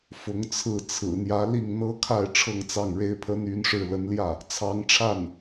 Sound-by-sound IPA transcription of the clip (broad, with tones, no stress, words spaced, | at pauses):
fʊ˧˥ŋt͡sʰɹ̩˥˩ t͡sʰɹ̩˨˩n̪jä˧˥ li˥˩ŋ n̪ɤ˥kʰa˥˧ɪ̯ ʈ͡ʂʰɤ˥˧ŋt͡sɑ˥˩ŋɻe˥ɪ̯pʰə˥n y˧˥nʂɻ̩˥˩ lə˧˥nljä˥˩ | t͡sʰɑ˧˥ŋʈ͡ʂʰa˥˩n